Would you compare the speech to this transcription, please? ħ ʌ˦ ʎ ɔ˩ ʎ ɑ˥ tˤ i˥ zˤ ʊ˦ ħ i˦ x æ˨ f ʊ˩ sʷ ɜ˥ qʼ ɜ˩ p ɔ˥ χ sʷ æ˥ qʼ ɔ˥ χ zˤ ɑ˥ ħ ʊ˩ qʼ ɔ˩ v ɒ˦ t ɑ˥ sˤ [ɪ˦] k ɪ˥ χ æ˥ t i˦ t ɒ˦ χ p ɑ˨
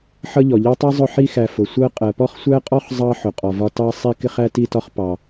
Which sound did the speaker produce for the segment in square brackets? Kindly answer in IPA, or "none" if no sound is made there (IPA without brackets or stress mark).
i˦